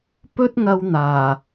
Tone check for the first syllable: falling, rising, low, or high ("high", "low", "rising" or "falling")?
high